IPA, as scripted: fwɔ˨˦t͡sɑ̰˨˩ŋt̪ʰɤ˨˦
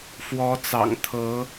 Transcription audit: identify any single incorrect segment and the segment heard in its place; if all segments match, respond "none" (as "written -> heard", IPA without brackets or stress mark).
none